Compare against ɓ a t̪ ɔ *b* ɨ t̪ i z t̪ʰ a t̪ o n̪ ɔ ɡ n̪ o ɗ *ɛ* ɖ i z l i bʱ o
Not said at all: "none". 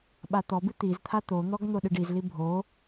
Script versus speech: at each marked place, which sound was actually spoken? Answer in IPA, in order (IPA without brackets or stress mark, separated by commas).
b, ɨ